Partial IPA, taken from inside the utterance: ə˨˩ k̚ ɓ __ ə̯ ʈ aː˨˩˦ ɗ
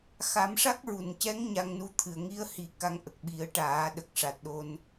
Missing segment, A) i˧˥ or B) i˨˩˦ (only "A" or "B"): B